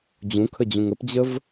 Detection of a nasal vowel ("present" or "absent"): present